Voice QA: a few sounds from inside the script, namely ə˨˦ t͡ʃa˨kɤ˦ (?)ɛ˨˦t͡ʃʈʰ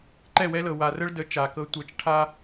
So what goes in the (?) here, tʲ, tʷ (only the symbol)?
tʷ